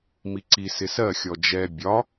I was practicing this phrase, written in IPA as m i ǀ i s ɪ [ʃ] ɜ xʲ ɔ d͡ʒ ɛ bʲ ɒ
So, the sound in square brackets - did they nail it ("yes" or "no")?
no